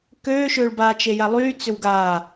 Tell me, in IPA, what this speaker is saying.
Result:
køːʃʏːɭbaː t͡ʃejalˠyː t͡sʏwɡaː

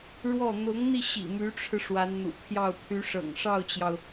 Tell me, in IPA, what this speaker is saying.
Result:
ɻwɔ˥˩ n̪ʊ˧˥ŋn̪i˧ɕḭ˨˩ my˧˥ʈ͡ʂʰɻ̩˧ ʂwa˧˥nn̪ṵ˨˩pʰjɑ˥˩ʊ̯ pʰy˧˥ʂɤ̰˨˩ŋʂɑ˥˩ʊ̯t͡ɕjɑ˩ʊ̯

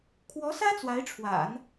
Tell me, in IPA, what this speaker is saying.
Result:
kʰwɔ˧˥sä˥ t͡swa˧˥ɪ̯ʈ͡ʂʰwa̰˨˩˦n

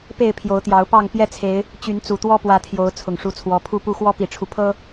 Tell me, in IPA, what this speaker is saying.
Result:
pe˥˨ɪ̯pʰjo˨˦ʊ̯t̪jɑ˨˦ʊ̯ pɑ˥˨ŋ pjɛ˥˨t͡sʰe˨˦ɪ̯ | t͡ɕy˨˦nt͡su˨˩t̪wɔ˦ pwä˨˦t̪ʰjo˨˦ʊ̯ t͡sʰʊ˨˩ŋʂu˨˦t͡sʰwɔ˨˦ pʰu˥˨pu˥˨ xwɔ˦pi˨˩ʈ͡ʂʰu˦ pʰɤ˦

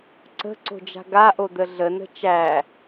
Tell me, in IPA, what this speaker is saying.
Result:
ǀə̤ǀo̤d͡ʒa̤ ɡaʔod̪ə ɮənə̤ t͡ʃæ

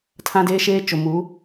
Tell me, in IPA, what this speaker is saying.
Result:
tʰã˦deː˦ ʃeː˦t͡ʃo˨mu˨˦

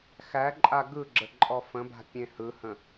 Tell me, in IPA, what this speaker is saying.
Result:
xæǃʼa ɡɯɡ͡ǁə ǃʼɔfə̃ba̤ pʲẽhɯhə̃

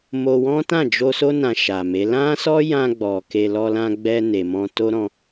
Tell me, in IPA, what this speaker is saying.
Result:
mo˧ wɔ̃˦tã˦˨d͡ʒo˧so˦ nã˧ʃa˨me˨˦ lã˦sɔ˦jã˧ ɡ͡bɔ˨ ke˧ lɔ˧lã˧ɡ͡bɛ˧ne˨ mɔ̃˧to˦ɾɔ̃˧

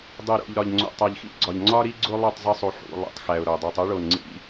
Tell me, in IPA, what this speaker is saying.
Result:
dˤi˨ɾo̰˨ʎ ɾɒ˨ʎŋ͡ǀo̰˨ tˤæ˨ʎxḭ˦ɡ͡ǀɒ˨ʎ ŋ͡ǀɒ˦ɾi˦ ɡ͡ǀo˦ lˠi˦˨tˤ zˤe˦sˤu˨ħṵ˨ lˠḭ˨tˤxæ˨ʊ̯ɾo˨dˤi˨tˤ u˦ɭo˨nŋ͡ǀḭ˦

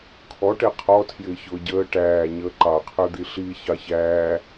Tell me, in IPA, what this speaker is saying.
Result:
kʰɔʈɛ qʰɔtʰjɪː çʊːɟəː ʈæː ɲəːǃɑqʰə˞d̪i ɬi çɑçæː

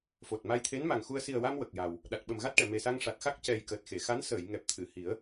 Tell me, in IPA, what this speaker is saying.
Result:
fo˨˩t̚ ma˧jt̪ʰe˧˥nma˨˩ŋxu˧ə̯ si˨˩ə̯wa˧m wə˨˩k̚ja˨˩w | ɗa˨˩t̚ɓə˨˩mɣa˦˥t̚ʈɛ˨˩˨ me˨˩sa˧ŋʂa˨˩t̚xa˦˥k̚ cɛ˨˩j kəː˨˩t̚xe˨˩˨xa˧˥n səː˨˩˨j ŋɛ˨˩p̚t̪ʰɨ˨˩˨hi˨˩˦ə̯

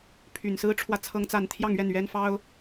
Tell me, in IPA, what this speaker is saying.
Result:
pʰy˨˩nsɹ̩˥ ʈ͡ʂʰwä˥˩t͡sʰɤ˥ŋt͡sa˥˧n t̪ʰjɑ˥˧ŋɥɛ˥˩nɥɛ˥nfɑ˥ʊ̯

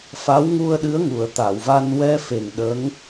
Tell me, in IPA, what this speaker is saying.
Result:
fa˧˥wŋu˧ə̯ ɗɨ˧˥ə̯ŋu˨˩˨ə̯t̪a˨˩˨wva˧n wɛ˧fe˨˩ŋ ɗə˧˥ŋ

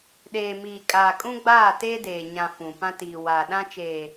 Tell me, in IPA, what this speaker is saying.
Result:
ɗeː˨miː˨kʼaː˨ kʼũ˦ɡ͡baː˦˨teː˦ deː˨ ɲã˨ fũ˨ pã˦tiː˨ waː˨ɗã˦t͡ʃeː˨

